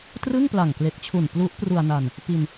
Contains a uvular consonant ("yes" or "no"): no